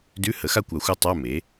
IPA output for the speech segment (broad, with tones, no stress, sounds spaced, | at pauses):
d ʉ˧˥˧ h ə˩˥ x a˥˨ kʷ a˨˩˦ xʷ a˦˥ tˤ a˧˥˧ m e˩˥